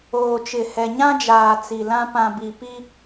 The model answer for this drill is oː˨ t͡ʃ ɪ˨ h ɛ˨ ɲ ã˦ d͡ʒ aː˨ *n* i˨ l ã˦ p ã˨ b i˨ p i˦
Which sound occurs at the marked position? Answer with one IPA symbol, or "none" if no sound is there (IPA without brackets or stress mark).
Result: t͡s